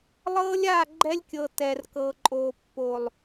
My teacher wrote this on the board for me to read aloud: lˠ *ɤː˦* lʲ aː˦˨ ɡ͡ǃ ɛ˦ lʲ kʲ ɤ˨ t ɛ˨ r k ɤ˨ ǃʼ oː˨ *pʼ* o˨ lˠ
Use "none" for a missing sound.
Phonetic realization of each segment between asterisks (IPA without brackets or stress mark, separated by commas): ɤː˦, pː